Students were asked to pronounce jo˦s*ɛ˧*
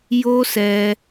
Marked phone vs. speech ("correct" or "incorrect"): correct